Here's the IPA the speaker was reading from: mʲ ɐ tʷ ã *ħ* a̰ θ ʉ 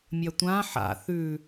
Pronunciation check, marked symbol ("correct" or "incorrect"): correct